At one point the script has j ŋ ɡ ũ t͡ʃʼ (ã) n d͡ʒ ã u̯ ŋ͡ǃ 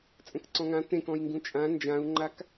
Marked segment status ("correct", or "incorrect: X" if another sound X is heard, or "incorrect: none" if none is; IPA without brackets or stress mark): correct